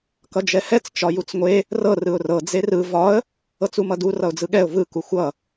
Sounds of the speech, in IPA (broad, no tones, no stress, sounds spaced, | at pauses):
k ʌ d͡ʒ ɛ h ɛ t͡s t͡ʃ ɒ j u t͡s ŋʷ e | r ɤ r ɯ ʊ̯ r ɤ d͡z e r ɯ v ɒ ə̯ | ɤ t͡s u m ʌ d u r ʌ ʊ̯ d͡z ɯ ɠ ɛ ʊ̯ v ɯ k u xʷ ʌ